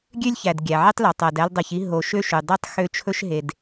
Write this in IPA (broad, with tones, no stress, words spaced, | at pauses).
ɡʲø˥lʲçæ˩d ɡʲæ˩ʕi˦tˤlo˩ tˤæ˩dæ˦ldˤɛ˨çi˥ ɦo˨ʃø˥ʃʉ˩dˤi˥tˤ xø˦t͡ʃʰɵ˥ʃɦe˨d